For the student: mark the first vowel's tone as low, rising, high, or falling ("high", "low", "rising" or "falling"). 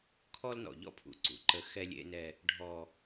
high